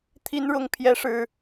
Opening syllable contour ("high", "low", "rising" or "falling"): high